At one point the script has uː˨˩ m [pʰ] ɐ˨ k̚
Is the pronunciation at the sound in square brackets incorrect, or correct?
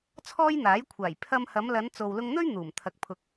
incorrect